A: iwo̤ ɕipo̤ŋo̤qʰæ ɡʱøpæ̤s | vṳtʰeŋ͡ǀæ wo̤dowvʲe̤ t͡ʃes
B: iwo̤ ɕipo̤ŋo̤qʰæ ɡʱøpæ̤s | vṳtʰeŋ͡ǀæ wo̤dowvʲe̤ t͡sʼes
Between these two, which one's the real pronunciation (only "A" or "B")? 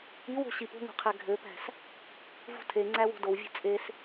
B